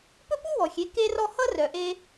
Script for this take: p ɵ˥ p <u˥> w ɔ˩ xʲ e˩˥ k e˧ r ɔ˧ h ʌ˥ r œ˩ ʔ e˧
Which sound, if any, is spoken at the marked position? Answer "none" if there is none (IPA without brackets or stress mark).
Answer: u˥